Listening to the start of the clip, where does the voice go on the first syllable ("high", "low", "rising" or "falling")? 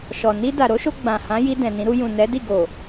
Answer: low